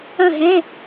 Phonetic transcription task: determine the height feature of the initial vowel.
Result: mid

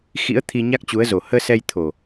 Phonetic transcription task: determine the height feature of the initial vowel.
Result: high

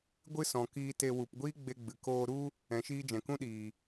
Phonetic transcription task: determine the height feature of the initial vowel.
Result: high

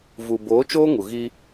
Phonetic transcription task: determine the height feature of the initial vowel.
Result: high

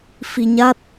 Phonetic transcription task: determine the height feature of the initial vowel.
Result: high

